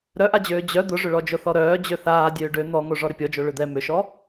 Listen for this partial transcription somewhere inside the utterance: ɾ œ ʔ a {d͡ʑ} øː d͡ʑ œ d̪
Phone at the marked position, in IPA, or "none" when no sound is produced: d͡ʑ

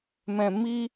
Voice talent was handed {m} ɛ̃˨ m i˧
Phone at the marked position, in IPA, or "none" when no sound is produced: m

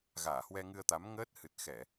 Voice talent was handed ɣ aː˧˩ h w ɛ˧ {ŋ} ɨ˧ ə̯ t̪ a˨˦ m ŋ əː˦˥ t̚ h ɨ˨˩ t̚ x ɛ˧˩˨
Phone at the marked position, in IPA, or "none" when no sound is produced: ŋ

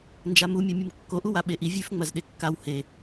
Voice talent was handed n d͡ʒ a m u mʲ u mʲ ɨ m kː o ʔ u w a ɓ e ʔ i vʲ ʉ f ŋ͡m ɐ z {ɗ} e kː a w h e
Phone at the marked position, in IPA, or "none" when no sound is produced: ɗ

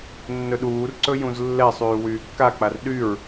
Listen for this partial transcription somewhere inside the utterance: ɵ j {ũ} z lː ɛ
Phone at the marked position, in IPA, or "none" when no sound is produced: ũ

